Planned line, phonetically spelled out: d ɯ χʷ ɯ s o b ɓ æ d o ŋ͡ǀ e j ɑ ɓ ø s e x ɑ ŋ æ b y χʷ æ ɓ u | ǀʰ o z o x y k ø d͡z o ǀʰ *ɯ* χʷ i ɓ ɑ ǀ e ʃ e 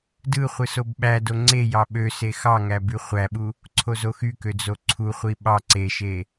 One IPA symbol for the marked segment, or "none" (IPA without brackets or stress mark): u